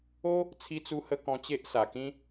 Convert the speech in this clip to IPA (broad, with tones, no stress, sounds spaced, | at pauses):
o˦ | t͡sʰ i˧ t͡s u˧ h ə˧ k ɔ̃˧ t͡ɕ e˦ ʔ s a˨˩ k ĩ˦